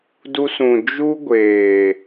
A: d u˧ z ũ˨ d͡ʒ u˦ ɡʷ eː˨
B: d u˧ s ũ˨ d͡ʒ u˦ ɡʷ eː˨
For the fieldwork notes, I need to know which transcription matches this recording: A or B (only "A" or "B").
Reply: B